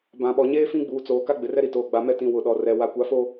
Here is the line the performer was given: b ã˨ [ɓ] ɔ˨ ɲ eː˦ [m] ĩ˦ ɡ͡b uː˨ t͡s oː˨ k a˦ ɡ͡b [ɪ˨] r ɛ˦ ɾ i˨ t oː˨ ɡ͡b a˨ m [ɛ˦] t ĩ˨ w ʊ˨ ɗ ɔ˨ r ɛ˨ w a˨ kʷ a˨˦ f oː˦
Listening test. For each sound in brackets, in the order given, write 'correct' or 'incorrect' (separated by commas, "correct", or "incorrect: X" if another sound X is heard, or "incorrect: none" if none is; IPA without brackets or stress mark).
correct, incorrect: f, correct, correct